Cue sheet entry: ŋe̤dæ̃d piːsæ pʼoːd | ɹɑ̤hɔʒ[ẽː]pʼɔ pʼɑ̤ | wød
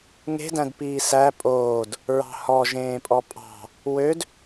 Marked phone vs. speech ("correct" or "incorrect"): correct